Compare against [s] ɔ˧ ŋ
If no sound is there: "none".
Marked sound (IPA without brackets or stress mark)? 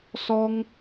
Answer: s